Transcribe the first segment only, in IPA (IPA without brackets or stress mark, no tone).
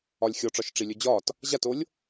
ɒ